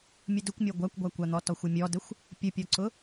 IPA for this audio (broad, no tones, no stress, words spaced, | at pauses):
mʲʊdʊkʷmʲɔ ɡʷakʷɡʷakʷan̪ɔ tɔxʷʊmʲɔdəxʷ | pʲʊpʲɔǀʊ